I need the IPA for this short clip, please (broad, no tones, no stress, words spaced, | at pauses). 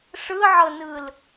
ʂɯʕɤnɯl